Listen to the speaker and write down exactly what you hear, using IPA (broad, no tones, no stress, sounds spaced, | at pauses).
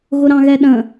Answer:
ɣ ʊ ɾ ɑ̃ ɣ ɛ ɗ ə̃